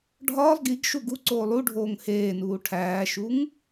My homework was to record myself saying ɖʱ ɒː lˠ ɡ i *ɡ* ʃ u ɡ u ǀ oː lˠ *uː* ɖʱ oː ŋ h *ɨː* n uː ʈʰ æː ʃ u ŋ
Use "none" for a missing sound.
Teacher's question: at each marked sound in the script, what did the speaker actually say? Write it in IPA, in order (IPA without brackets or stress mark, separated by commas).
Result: ɡ, u, eː